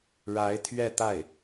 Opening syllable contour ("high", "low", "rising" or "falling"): rising